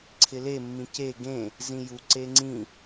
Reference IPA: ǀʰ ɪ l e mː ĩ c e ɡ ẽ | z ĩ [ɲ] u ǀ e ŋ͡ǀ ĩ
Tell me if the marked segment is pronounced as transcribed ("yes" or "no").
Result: no